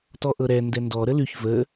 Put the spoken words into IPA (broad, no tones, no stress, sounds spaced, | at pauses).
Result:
t ɔ ʔ ɤ ɾ ɛ n d ɛ n d ɔ ɾ ə l ʉ ç v ə